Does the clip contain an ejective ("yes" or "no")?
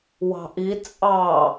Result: yes